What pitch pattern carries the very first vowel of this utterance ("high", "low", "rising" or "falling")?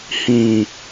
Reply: low